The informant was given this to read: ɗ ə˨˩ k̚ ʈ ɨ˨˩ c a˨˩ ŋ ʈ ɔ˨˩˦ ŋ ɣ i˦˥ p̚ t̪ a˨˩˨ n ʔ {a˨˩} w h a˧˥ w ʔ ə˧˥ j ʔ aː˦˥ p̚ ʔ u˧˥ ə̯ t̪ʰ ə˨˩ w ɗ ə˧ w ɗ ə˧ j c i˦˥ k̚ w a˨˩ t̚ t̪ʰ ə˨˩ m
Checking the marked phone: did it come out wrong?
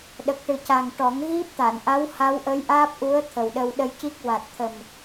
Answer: yes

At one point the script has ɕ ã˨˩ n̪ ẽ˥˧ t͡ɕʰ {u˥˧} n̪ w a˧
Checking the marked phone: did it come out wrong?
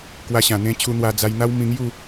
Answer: yes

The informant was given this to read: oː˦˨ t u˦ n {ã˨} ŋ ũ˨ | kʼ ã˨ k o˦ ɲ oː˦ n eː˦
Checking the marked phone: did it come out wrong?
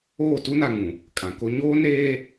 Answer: yes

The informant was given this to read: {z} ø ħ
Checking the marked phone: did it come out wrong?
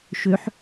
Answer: yes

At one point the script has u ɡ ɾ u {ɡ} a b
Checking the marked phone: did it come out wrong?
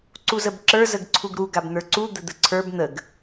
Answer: no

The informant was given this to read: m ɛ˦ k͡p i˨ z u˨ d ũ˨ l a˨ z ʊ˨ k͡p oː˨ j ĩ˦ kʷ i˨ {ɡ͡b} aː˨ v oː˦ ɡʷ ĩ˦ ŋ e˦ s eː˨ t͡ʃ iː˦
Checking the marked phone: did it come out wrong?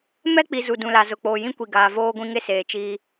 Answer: yes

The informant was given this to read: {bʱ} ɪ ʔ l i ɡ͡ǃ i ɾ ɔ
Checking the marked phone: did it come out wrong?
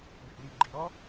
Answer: yes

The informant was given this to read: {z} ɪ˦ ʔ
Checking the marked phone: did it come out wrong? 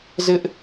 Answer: no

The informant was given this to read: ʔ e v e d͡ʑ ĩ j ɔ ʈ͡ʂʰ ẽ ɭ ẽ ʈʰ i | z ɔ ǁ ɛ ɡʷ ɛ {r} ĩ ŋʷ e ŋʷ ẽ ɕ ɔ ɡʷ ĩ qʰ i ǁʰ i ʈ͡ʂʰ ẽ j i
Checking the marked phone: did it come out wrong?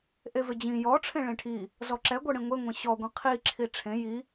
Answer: yes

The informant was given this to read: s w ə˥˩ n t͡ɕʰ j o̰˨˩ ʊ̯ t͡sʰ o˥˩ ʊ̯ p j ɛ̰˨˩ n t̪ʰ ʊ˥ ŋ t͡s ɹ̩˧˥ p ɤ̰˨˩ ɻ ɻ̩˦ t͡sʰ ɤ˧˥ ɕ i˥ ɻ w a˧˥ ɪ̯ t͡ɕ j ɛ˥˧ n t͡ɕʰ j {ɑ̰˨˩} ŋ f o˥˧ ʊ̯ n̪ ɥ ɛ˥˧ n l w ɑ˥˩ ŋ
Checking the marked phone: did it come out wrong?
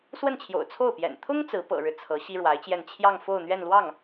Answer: yes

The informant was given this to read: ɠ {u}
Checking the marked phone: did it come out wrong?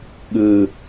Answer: yes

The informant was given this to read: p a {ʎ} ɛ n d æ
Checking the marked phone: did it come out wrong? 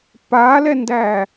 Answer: yes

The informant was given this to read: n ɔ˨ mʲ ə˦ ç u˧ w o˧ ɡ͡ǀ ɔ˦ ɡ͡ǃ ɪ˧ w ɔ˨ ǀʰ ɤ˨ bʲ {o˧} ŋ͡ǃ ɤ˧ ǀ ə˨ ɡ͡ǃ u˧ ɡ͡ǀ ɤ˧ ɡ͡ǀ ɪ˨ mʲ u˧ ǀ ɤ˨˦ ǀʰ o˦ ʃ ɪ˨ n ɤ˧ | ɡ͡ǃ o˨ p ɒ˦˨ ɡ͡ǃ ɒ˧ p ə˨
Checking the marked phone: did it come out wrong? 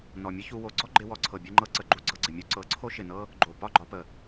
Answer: yes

